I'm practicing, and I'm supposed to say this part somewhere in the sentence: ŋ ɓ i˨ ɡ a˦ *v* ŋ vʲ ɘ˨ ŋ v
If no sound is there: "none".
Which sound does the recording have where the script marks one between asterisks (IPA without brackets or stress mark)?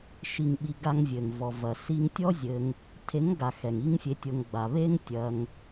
none